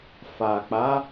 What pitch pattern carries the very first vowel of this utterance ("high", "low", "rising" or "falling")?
low